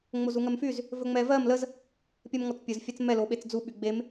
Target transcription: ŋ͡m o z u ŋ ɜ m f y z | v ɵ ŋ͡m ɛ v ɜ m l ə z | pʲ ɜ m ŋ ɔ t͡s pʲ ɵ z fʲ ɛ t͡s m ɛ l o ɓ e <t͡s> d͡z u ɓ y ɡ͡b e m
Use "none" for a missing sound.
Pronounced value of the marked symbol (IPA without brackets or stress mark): t͡s